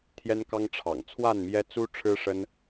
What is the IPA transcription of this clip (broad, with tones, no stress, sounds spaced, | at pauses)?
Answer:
t̪ʰ j ɛ˦ n k ɑ˦ ŋ ʈ͡ʂʰ ɑ̰˨˩ ŋ t͡sʰ w a˥˨ n m j ɛ˦ t͡s u˦ ʈ͡ʂʰ ɻ̩˦ ʂ ə˦ n